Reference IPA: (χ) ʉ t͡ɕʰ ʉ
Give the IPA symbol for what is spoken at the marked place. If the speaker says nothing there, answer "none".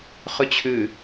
χ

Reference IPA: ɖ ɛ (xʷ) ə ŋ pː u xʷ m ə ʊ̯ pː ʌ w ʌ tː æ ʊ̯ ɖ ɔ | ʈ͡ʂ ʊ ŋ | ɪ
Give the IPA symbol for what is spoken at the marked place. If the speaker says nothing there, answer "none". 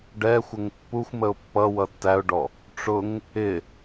xʷ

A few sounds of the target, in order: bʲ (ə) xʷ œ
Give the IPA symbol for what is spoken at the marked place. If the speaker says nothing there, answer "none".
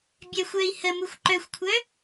ɛ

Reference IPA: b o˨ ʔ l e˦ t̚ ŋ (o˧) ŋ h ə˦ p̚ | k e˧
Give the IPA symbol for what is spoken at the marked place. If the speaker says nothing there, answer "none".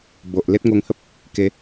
o˧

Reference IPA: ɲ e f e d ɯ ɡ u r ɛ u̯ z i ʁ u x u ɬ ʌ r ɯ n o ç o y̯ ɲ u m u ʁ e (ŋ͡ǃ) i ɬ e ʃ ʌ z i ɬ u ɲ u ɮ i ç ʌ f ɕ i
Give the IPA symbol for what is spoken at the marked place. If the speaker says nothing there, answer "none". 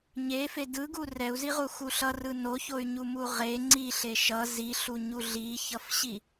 ŋ͡ǀ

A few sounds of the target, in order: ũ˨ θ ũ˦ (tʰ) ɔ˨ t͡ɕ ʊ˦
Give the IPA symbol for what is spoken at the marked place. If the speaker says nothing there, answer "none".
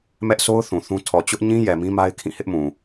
tʰ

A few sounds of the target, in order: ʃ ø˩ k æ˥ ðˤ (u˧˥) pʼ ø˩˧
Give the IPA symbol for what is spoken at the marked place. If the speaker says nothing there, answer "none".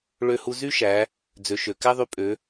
y˧˥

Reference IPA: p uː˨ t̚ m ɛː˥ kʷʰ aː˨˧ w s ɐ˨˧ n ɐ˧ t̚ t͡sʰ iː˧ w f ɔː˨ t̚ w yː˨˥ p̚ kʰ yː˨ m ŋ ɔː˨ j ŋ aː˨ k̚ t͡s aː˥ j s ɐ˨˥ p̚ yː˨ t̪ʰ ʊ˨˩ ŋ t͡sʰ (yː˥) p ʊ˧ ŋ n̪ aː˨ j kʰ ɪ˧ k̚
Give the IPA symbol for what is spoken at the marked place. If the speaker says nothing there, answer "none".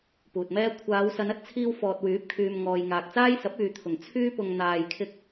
yː˥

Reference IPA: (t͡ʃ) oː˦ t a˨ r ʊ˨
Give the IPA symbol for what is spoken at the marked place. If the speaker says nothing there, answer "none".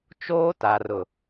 t͡ʃ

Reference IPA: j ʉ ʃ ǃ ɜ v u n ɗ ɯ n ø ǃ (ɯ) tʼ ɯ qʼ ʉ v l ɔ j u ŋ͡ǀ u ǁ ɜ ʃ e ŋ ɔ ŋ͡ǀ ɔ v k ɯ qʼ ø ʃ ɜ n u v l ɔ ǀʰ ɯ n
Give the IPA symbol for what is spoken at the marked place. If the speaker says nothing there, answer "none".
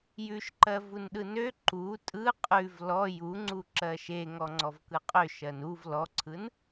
u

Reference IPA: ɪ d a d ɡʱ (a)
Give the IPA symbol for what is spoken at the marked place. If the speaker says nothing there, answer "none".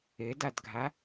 a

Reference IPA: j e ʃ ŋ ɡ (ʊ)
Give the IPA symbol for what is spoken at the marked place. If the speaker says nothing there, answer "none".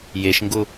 ʊ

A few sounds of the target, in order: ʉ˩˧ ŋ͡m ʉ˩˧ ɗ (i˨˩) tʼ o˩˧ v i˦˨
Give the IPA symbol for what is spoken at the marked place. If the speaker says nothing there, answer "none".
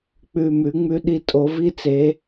i˩˧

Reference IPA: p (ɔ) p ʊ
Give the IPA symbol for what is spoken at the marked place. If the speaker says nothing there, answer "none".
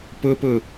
ʊ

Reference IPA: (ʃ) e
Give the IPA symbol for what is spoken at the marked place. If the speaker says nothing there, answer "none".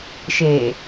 ʃ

